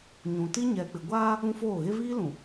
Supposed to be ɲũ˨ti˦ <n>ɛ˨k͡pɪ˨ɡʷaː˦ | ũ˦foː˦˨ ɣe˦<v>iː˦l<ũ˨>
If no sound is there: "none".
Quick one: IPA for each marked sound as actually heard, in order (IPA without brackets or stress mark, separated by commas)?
ɲ, v, ũ˨